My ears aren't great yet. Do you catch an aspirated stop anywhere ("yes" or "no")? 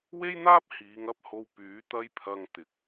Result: yes